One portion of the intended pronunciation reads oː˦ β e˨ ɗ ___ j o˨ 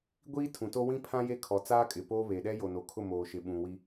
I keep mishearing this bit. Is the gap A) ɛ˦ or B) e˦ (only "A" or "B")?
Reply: A